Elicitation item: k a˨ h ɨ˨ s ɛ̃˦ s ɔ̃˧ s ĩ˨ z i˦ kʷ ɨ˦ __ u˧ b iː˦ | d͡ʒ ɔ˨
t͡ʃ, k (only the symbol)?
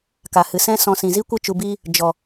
t͡ʃ